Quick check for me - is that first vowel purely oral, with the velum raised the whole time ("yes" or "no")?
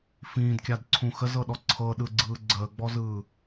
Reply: no